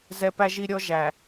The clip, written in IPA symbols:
zɛ˨ pæ˦ʒi˦ɾʲɔ˦ ʒæ˨

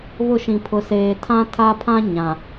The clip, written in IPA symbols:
βʊ˦˨ʃĩ˨ pʰʊ˨seː˨ tʰã˦tʰa˦pʰã˦ ɲã˨

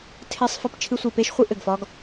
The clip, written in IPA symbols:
tʰe˦sˤ fɘ˦pt͡ʃʰɨ˦sʷi˨ pe˥ʃχʷi˦ʔɘ˩ɡ fɒ˦ɡ

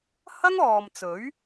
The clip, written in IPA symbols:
hɐ˥ŋɔː˨m t͡sɵ˨˥ɥ

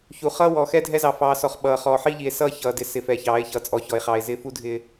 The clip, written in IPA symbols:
çu˨χʌː˦ wɔ˨xɛ˦dʱɛ˦zɑ˨ fɑː˨sɔ˨χɓʌː˨ χɔː˨ħi˦ʎi˨e̯ sʌː˦ çʌː˨dɪ˨˦ sɪ˨fɛ˨çɑː˨˦e̯ çʌː˨t͡sʼɔ˨ çɔ˨e̯χɑː˨e̯zɪː˦ fu˦dʱɪː˦

